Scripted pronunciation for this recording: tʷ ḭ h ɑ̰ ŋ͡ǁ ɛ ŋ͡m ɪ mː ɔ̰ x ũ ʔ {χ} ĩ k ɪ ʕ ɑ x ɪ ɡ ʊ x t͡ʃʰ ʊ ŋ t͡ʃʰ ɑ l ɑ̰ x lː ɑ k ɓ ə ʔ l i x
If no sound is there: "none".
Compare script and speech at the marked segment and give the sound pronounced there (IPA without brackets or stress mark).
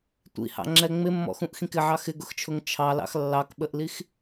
x